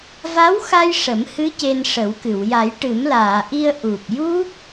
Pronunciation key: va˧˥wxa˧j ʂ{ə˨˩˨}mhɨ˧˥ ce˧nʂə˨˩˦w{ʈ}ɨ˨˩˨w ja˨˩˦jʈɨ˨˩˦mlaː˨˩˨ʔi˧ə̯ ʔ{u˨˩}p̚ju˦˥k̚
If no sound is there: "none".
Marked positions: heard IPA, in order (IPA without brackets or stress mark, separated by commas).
ə˨˩˦, k, u˨˩